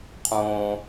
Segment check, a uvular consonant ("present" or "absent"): present